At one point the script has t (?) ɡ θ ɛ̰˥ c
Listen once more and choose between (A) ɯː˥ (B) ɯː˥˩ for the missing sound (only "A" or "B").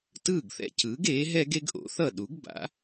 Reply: B